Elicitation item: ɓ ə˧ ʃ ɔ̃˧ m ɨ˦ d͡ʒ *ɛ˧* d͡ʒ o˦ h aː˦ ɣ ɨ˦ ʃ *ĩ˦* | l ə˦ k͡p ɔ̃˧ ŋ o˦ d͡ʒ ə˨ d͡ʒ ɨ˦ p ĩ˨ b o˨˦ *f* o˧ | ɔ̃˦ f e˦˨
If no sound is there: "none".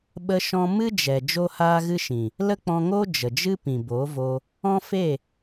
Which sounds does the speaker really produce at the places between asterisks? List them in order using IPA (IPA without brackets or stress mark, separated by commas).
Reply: ɛ˨, ĩ˨, v